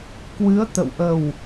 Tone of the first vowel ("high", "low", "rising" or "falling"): rising